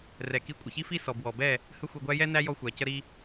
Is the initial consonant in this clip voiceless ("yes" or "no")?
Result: no